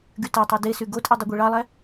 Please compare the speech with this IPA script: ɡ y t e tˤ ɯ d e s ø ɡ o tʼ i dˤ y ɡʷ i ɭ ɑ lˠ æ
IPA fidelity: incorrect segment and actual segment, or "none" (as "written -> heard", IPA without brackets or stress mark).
ø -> y